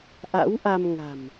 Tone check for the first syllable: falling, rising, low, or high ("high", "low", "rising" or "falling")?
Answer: rising